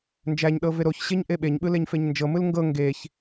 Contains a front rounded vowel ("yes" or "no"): no